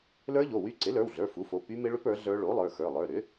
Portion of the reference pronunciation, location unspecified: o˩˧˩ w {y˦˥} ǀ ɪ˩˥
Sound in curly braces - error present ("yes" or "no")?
no